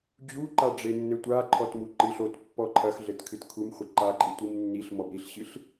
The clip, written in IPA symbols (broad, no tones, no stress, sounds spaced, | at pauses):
d͡ʑ u ǃ a ɖ͡ʐ e nː ɘ tʷ a ǃʰ ɔ t m u ǃ ɨ ɬ o t pː ɔ ǃʰ ɐ x ɮ ɘ t kʰ ɨ t kʰ u m χʷ ɘ ǃ a ǃʼ ɨ tʷ i m nː i ɬ m ɔ b ɾ i ɬ ɕ ɨ ɬ